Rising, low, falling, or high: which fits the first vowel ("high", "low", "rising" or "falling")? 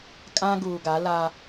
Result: high